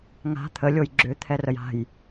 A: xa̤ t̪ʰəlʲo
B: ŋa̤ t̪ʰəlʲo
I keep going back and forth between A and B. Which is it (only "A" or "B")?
B